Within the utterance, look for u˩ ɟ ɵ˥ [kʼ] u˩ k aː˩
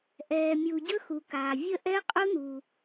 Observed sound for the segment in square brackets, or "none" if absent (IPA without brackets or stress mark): x